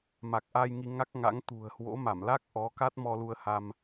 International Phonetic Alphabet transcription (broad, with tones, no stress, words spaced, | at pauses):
ma˨˩k̚ʔa˧j ŋi˧ŋa˦˥k̚ŋa̰˧˥ŋ t̪ṳ˨˩ə̯hwo̰˧˥ma˧˩mla˦˥k̚ ʔɔ˨˦ka˦˥t̚ mɔ˧lu˧ə̯ha˧m